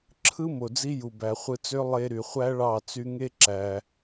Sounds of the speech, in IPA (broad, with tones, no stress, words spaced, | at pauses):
ǁʰɯ˦ mo˨d͡zi˦ju˨bæ˨ χʷɯ˧t͡sø˦ lˠe˧ ɾy˨ χʷæ˦ɭɑ˦˨ t͡sy˧ŋe˦ ǁæ˧